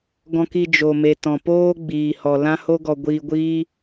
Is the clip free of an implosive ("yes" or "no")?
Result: yes